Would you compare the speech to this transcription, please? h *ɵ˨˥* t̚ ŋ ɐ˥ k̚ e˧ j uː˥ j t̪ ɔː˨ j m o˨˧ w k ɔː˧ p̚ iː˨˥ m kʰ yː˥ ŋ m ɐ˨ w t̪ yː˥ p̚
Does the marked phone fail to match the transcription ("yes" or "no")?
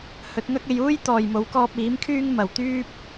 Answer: no